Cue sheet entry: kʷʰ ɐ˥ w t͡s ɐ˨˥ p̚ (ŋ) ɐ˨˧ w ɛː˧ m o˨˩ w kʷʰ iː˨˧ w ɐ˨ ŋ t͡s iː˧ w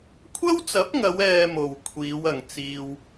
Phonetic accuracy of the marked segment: correct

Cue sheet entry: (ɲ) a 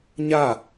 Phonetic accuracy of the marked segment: correct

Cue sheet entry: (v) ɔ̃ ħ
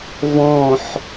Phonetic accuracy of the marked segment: correct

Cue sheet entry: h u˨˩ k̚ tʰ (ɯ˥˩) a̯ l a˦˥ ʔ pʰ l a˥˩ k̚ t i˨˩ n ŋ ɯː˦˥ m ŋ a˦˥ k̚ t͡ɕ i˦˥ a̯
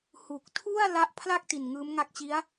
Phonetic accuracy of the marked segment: incorrect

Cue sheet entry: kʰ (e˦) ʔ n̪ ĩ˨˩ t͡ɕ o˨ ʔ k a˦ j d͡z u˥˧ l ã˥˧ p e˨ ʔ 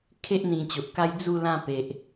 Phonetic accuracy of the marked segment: correct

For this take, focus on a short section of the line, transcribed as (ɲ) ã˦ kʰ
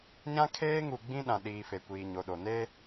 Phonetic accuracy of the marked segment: correct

